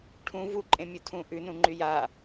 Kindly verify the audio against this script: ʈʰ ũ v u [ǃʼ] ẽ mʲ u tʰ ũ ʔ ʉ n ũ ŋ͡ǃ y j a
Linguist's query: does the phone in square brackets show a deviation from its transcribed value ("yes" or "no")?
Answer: no